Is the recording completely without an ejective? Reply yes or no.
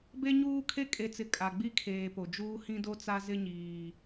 no